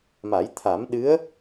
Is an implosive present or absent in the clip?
present